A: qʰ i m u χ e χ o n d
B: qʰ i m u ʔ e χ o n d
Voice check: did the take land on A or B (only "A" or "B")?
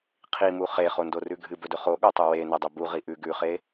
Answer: A